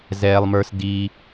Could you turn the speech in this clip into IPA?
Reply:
zɛː˨lˠmə˞˧sdi˧

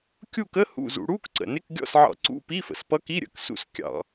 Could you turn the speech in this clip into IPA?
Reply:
kʲu˦˨kə˧˥˧ hṵ˦˨zṵ˧˩˧ɽu˧˥˧k ǀə̰˩nɪ˧˥˧k ɡʲɔ̰˦˨sʕɑ̰˧˩˧ ǀṵ˧˥˧pi˧˥˧fə̰˩s pʌ˧˥ki˧˥˧ɾʲə̰˩˧˩ksṵ˦˨s kʲɑ̰˧˩˧

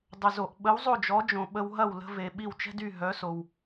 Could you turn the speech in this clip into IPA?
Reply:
dˤə˩zo˩ʔ ɓə˩˥wzˤo˥˩d͡ʒɔ˩˥d͡ʒõ˩ ɓə˧w ɦɐ˥˩w lə̤˧ve˩ ɓi˥˩wt͡ʃɛ̤˥dy˥˩ ɦœ˩˥so˩w

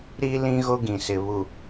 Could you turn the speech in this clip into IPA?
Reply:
ɾi˦lĩ˦ ɣo˦ɡĩ˨sɪ˨ βu˨

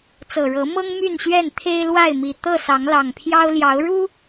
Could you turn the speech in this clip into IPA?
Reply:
t͡sɤ˨˩ɻɤ˨˦ mɤ˦ŋ my˥˨nɕɥɛ˥˨n t̪ʰe˦ɪ̯lwa˥˨ɪ̯mi˨˩ t̪ɤ˥˨sɑ˨˦ŋlɑ˨˩ŋpʰjɑ˦ʊ̯ ljɑ˨˦ʊ̯ɻu˦

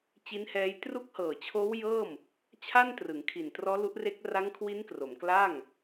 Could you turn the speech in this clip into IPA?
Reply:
t͡ɕi˦˥nhɛː˦˥j tru˦˥k̚hɤː˨˩t͡ɕʰoː˦˥w jɤː˥˩m | t͡ɕʰa˥˩ntrɯ˩˦ŋ kʰi˨˩ntrɔː˦˥lu˦˥ʔre˦˥k̚ ra˦˥ŋkʰwi˦˥nkro˩˦m kla˥˩ŋ

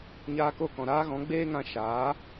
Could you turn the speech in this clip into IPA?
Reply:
ɲaː˧ko˦˨kɔ̃˨ ɾaː˦ɣɔ̃˨˦ ɡ͡beː˦ŋã˧ ʃaː˨˦

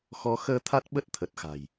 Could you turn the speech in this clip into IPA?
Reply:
xɔ˨˦ xəː˧t̪ʰa˦˥t̚ɓə˦˥t̚ t̪ʰə˨˩t̚xa̤˨˩j

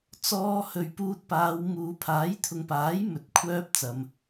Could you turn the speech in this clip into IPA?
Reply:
t͡sɔː˧hɵ˨ɥpuː˧t̚paː˨˧w muː˨pʰaː˨˥j t̪ʰʊ˨ŋpaː˨˥j mɵ˨˥t̚kʷʰœː˧p̚ t͡sɐ˨m

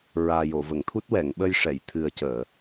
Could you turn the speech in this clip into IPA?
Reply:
ɹaː˨˩jo˨˩˨və˨˩˨ŋt̪ʰu˦˥t̚ wɛ˨˩˨ŋɓə˧jʂɛ˨˩˨j t̪ʰɨ˨˩ə̯cəː˨˩˨

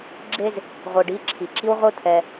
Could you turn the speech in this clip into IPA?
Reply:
ɡ͡ǁe˦z | ʁʷɯ˨ɖi˨˦ǁʰi˨ ǁi˦wʁʷɯ˦ t̪ʰɛ˦

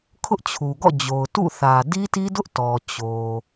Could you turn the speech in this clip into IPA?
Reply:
kʰʊ˦ʔt͡ɕʰu˨ɡɔ̰˦˨ d͡ʑo˨ʊ̯tṵ˦˨θä˨ di˦ti˦dʊ˦ʔ tɔ˨ t͡ɕo˨

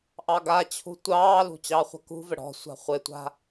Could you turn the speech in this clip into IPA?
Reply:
ʔɑɡat͡ɕʰṳ tʷɑːlṳ t͡ɕɑχʷa̤kṳvə ɽɔ̤sʷa̤ χʷɪtʷa̤

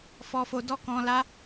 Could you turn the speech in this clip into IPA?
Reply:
fɔ˧fo˧dɔ˦kɔ̃˧ la˦

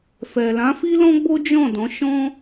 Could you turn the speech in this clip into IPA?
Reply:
fɛ˨lã˨˦ fi˦lɔ̃˦ɡ͡bo˦ d͡ʒɔ̃˦˨dɔ̃˨˦ ʃɔ̃˦

